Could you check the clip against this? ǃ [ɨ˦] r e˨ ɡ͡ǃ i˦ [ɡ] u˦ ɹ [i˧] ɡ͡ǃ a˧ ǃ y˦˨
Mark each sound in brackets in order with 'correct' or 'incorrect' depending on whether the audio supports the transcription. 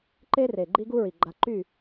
incorrect, correct, incorrect

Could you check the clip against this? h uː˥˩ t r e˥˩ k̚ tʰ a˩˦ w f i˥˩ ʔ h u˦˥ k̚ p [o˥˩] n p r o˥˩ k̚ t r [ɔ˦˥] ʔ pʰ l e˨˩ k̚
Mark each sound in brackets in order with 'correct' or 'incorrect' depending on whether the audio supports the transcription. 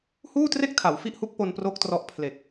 incorrect, correct

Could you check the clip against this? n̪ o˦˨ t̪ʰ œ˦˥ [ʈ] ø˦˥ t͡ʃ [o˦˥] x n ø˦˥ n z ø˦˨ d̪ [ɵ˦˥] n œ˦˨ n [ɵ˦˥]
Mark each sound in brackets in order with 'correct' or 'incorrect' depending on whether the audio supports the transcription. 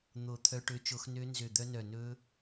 correct, correct, incorrect, correct

